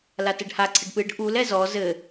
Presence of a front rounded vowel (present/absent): absent